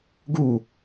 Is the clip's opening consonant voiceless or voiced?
voiced